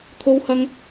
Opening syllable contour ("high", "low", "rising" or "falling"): high